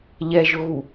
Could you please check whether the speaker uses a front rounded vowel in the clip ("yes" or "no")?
no